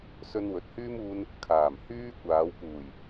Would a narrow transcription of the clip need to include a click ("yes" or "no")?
no